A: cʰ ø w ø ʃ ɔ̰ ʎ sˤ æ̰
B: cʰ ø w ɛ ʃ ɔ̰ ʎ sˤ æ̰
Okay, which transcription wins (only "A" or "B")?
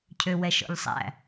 B